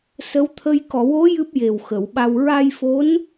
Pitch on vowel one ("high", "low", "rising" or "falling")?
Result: rising